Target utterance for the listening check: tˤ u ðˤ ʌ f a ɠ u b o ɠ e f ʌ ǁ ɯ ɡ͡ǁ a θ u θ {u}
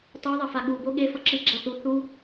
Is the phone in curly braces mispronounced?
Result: no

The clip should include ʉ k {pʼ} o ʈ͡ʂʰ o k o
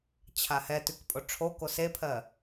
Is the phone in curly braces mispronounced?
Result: no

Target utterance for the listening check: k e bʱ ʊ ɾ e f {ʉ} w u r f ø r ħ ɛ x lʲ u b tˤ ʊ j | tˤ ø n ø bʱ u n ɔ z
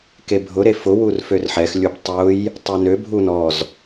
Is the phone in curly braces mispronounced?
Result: yes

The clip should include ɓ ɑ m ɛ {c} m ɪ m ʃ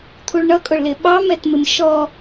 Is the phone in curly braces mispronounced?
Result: yes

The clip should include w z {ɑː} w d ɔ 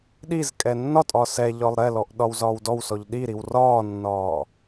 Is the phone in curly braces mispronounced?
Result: yes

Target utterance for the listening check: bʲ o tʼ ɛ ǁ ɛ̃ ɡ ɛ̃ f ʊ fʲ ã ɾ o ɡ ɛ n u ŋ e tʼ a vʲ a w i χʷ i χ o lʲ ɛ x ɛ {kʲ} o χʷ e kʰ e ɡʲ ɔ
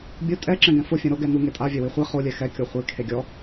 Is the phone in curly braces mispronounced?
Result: no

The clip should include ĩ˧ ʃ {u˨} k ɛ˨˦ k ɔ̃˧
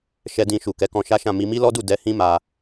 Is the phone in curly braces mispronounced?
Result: no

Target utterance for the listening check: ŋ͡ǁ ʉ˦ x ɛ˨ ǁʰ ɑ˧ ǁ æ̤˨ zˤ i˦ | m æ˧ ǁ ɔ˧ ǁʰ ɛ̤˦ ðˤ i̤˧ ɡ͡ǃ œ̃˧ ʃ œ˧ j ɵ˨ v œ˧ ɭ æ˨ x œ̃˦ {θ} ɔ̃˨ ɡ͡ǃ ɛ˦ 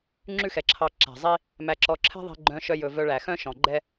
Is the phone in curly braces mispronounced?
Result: yes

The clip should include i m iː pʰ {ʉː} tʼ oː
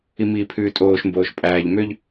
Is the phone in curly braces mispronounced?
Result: no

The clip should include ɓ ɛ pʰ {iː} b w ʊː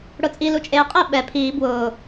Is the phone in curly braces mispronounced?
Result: no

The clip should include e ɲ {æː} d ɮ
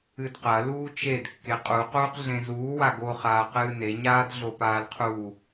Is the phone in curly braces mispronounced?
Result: yes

